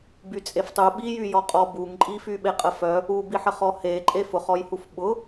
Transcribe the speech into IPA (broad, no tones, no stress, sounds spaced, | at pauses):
b y t͡sʼ e f tˤ u ɓ i j y j ɔ qʼ ɔ b u ŋ ǃʼ i f y ɓ e qʼ ə f œ | u b i ħ ə χ ɔ h e ǃʼ e f ʊ χ ɔ j h u f ɓ ʊ